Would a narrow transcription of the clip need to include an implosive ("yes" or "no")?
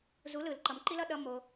yes